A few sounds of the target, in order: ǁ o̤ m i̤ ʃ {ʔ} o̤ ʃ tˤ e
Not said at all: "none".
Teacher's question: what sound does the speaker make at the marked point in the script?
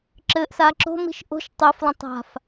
ʔ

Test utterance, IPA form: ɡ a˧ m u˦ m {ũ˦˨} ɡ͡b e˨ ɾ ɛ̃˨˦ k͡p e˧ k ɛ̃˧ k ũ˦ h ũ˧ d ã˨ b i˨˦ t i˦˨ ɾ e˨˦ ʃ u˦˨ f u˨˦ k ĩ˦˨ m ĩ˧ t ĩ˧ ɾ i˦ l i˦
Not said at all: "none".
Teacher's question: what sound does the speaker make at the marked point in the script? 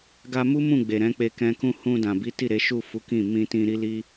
ũ˦˨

